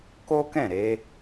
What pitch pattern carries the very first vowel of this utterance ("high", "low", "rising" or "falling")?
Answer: high